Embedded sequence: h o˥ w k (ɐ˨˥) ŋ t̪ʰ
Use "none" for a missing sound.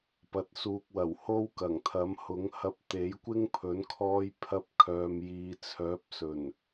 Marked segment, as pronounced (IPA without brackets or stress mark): ɐ˨˩